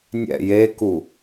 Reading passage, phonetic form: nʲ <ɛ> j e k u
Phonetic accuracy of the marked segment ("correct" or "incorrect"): incorrect